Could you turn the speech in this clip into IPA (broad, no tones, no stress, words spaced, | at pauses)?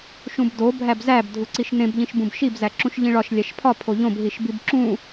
ʃũbdo bʱæbzæb dʱuǀiʃnẽb ʎĩʃbũbʃib zæǁũʃʎĩɭɒʃ lʲæʃpʰɒ pʰoʎõb ɦiʃbibǁũ